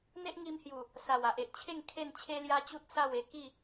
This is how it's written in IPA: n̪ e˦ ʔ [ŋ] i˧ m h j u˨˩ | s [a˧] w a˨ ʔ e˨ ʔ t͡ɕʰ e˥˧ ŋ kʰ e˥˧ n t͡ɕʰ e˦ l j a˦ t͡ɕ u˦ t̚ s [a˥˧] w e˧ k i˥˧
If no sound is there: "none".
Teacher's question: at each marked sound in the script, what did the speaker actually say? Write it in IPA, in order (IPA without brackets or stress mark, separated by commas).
ŋ, a˨˩, a˥˧